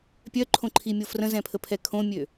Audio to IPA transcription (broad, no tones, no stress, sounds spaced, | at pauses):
pʲ œ ǃʰ õ ǃʰ i mʲ o f r ə̃ z ɛ̃ pʰ ə pʰ ɛ kʰ õ mʲ ø